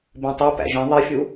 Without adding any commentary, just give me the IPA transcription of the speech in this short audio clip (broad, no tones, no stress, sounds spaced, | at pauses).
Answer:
b ĩ tˤ u p æ̰ ʒ ĩ ðˤ i fʲ u